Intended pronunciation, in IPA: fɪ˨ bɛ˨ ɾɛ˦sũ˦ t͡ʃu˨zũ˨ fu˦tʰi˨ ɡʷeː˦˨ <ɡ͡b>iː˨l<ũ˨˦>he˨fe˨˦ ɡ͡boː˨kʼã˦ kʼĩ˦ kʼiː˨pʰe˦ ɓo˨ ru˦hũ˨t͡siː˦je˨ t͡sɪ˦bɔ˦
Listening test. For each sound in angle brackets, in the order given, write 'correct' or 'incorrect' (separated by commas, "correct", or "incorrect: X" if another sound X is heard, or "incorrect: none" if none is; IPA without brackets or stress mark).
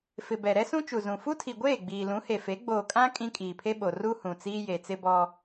correct, correct